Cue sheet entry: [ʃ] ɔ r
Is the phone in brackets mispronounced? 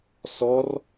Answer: yes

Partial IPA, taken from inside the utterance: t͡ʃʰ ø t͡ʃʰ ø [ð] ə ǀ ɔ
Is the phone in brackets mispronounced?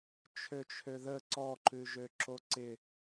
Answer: no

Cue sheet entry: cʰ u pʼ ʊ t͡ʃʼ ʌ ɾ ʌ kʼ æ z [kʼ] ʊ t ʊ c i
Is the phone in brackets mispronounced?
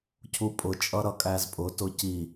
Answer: yes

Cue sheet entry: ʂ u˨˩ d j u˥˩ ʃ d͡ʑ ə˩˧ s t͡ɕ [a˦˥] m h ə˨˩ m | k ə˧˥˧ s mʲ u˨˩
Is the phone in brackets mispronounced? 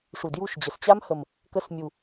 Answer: no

